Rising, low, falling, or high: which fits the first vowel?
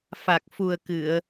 low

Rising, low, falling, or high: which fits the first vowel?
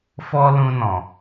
high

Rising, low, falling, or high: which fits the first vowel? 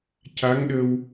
rising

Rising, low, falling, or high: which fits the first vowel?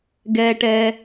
high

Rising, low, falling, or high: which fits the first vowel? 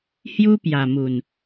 high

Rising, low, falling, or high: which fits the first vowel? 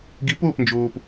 rising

